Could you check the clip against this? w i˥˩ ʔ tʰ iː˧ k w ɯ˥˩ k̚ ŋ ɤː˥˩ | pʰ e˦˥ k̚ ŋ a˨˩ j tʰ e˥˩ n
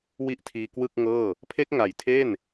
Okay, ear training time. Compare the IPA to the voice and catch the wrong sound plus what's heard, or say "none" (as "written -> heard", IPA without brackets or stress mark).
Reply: none